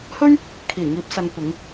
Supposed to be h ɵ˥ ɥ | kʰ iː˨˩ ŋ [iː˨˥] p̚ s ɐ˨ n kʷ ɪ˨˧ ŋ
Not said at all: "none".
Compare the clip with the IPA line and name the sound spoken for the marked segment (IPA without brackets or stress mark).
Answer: iː˨˥